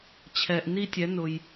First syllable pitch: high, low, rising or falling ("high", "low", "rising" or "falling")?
low